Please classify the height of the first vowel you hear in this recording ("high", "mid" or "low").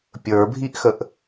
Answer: mid